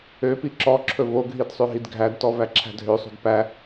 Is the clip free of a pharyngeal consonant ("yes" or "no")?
yes